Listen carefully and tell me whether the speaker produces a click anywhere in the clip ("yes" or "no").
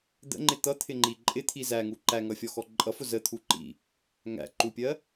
yes